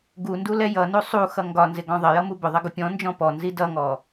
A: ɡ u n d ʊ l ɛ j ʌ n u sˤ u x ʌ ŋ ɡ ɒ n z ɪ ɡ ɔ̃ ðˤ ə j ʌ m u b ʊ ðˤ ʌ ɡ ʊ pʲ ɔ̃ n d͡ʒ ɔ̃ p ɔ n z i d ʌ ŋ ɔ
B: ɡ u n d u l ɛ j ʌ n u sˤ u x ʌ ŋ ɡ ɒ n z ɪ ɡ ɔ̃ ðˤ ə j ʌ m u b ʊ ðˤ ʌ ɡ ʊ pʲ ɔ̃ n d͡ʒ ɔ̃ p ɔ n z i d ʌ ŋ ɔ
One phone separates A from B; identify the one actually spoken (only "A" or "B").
B